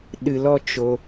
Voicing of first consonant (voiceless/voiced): voiced